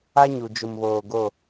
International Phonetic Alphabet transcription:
a˦ ɲ u˨ d͡ʒ ʊ˨ m β oː˨ ɡ o˦˨

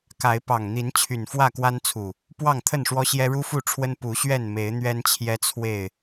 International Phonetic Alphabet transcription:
k a˨˦ ɪ̯ p ɑ˨˩ ŋ n̪ i˨˦ n t͡ɕʰ y˨˩ n f w ä˥˨ k w a˦ n t͡sʰ u˨˩ | p w ɑ˥˨ ŋ t̪ʰ ə˥˨ n ʂ w ɔ˦ ɕ j ɛ˦ ɻ u˦ f u˥˨ ʈ͡ʂʰ w ə˦ n p u˨˦ ɕ ɥ ɛ˥˨ n m e˨˦ ɪ̯ n̪ ɥ ɛ˦ n t͡ɕʰ j ɛ˦ t͡sʰ w e˥˨ ɪ̯

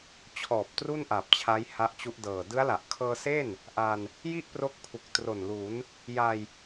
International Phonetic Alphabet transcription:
t͡ɕʰ ɔː˨˩ p̚ t r u˥˩ n ʔ a˨˩ p̚ t͡ɕʰ a˦˥ j h a˦˥ ʔ t͡ɕ u˦˥ ʔ d ɤː˨˩ d ɯ˦˥ a̯ l a˨˩ ʔ kʰ ɤː˧ s e˥˩ n | ʔ a˧ n | j i˥˩ ʔ p r o˦˥ k̚ pʰ u˨˩ k̚ t r o˨˩ n l u˩˦ n | j a˧ j

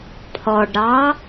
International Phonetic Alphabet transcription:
pʰ ɔ ɖ ɾ ɑ

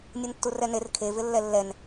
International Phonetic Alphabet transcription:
nʲ u n tː u r ɛ n e r kʰ e v ɪ lː ɛ lː ɛ n

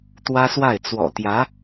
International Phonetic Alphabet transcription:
t̪ w ä˥ s w a˥˩ ɪ̯ t͡s w ɔ̰˨˩ t̪ j ä˧˥

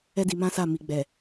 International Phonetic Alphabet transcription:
ɛ˦ d i˧ m ã˦ s a˦˨ m i˨ ɡ͡b ɛ˨

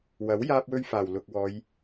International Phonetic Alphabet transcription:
w ɐ˨˥ w j aː˥ p̚ w ɵ˥ ɥ f aː˨˩ w l ʊ˨ k̚ w ɔː˨˧ j

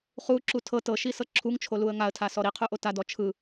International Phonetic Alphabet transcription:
χ u ǁ u tʰ ɤ t ɤ ʃ i s ɤ ǁʰ u ŋ t͡ʃʰ o l u ə̯ ŋ a ə̯ tʰ a s ɔ ɾ i qʰ u ʔ o t a d ɔ t͡ʃʰ ɯ

